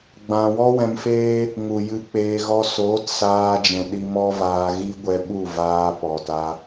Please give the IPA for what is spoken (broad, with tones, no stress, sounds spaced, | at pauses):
ɡ͡b ã˨ w ɔ˦ w ɛ̃˧ m f eː˦ | ŋ u˨ j ɨ˧ k͡p eː˧ ɣ ɔ˧ s oː˨˦ t s aː˧ d͡ʒ ɛ̃˨ ɗ i˧ m ɔ˦ v aː˧ ɣ i˦ ɡʷ ɛ˧ ɓ u˦˨ v aː˧ p ɔ˨ t a˧